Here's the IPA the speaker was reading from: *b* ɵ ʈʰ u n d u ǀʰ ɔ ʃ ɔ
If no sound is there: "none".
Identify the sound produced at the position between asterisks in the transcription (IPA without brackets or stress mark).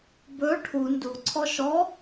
b